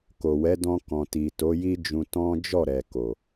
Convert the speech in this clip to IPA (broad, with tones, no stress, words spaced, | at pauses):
ko˨wɛ˨˦dɔ̃˧ kɔ̃˨ti˨to˨˦ji˦ d͡ʒũ˧tɔ̃˦ d͡ʒɔ˦˨ɾɛ˨ ko˨